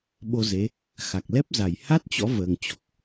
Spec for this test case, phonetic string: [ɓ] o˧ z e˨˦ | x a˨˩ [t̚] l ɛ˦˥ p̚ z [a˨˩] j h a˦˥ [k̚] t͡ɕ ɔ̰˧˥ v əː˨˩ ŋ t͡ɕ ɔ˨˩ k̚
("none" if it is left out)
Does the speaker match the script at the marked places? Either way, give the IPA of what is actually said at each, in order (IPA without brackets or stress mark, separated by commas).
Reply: ɓ, k̚, a˨˩, t̚